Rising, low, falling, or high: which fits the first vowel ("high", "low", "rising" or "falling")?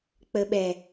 low